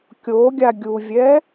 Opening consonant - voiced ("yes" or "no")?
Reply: no